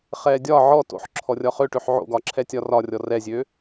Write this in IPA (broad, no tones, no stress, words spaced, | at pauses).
χɛːdʲɒ ʕɔ to̰ħ ǁʰɔrʲɒχøʈøħ ʕo̰ɡɒǁʰɛ tʲɒrɒrʲɔ rɛzʲø